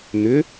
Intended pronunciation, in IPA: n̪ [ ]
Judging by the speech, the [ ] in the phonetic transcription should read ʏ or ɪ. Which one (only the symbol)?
ʏ